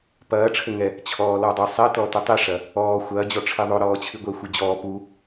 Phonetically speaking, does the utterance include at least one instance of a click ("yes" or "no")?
no